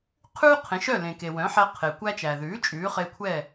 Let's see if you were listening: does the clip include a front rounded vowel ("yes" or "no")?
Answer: yes